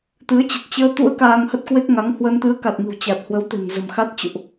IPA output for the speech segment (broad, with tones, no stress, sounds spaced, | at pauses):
t̪ ɨ˨˦ ə̯ t͡ɕ ə˨˩ t̚ t͡ɕ əː˧ t̪ ṵ˧˥ ə̯ k aː˧ ŋ h ə˦˥ t̚ k w e˦˥ k̚ ŋ a˨˦ ŋ h w ə˧ n t̪ ɨ˨˦ ə̯ k a˨˩ t̚ ŋ ɨ̤˨˩ w t͡ɕ a˨˩ t̚ h w ə˨˦ w t̪ e̤˨˩ n z ə̤˨˩ m x a˦˥ t̚ t͡ɕ ṵ˧˨ ʔ